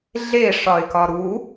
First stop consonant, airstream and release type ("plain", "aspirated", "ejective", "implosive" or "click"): plain